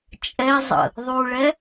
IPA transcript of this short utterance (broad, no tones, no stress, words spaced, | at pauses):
t͡ʃʼɛzˤə̰ | ðˤuɭɛ